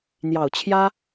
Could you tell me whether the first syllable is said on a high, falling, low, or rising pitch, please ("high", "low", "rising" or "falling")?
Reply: low